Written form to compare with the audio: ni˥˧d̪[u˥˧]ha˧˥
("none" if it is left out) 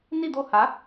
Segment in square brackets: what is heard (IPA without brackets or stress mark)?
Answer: o˥˧